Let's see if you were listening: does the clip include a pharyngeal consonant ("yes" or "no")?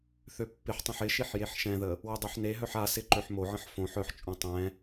yes